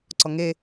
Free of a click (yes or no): no